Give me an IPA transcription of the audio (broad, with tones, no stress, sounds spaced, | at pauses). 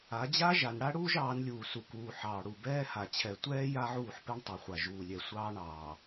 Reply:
a˨˦ d͡ʑ a˦ ʒ a˨ n ɽ a˦ ɽ uː˦ ʒ ɑː˨˦ n lʲ uː˨ s u˨ k uː˨ ħ ɑː˨ ɽ u˨ b ɛː˦ h a˨ t͡ɕʰ ɛ˨ tʷ ɛː˦ j a˦ ʕ uː˦˨ ħ p ɛ˦ ɳ tˤ ɛ˨ χʷ a˨ ʒ uː˨ lʲ ɛ˨ sʷ ɑː˦ ɳ ɑː˨